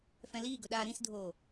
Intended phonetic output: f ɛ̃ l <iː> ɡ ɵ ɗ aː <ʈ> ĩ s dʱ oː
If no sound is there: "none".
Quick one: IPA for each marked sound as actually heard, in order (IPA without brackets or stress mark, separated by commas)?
iː, ɾ